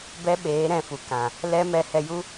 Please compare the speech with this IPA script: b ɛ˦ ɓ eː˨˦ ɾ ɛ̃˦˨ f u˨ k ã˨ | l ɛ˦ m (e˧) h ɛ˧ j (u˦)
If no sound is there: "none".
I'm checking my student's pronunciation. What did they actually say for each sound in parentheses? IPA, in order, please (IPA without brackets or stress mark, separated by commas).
ɛ˧, u˦